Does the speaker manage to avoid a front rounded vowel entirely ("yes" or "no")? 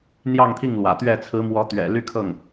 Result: no